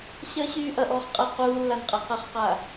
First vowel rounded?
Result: no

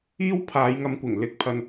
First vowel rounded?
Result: no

